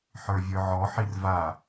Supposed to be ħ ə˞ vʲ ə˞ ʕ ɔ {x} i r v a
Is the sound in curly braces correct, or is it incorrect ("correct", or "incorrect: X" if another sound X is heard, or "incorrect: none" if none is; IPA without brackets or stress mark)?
incorrect: ħ